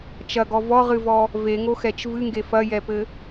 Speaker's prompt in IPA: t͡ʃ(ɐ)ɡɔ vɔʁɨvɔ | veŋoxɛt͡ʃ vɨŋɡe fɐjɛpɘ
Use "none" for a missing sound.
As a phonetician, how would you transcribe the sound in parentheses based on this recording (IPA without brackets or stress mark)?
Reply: ɐ